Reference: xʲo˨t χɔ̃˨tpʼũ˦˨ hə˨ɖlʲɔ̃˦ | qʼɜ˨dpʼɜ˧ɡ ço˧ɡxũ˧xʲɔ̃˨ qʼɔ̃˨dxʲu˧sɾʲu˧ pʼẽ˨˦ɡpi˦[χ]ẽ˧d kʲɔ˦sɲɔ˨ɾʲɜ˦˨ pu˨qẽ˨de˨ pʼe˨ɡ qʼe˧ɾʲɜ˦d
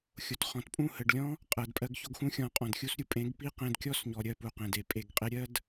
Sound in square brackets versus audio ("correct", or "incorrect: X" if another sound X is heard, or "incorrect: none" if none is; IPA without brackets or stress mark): incorrect: q